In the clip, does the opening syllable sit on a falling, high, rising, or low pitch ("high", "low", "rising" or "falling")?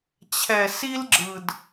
low